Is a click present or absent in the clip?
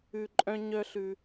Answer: present